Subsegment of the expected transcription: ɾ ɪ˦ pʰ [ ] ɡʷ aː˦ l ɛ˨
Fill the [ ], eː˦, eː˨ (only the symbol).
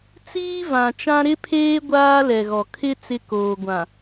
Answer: eː˦